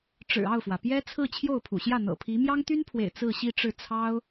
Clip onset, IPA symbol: ʈ͡ʂ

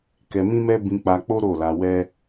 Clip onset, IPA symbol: k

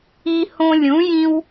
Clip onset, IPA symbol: i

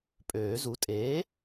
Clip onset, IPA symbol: pʼ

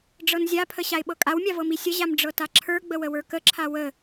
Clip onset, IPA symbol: ɖ͡ʐ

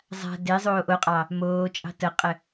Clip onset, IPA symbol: zˤ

